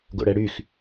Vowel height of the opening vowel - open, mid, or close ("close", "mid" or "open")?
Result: mid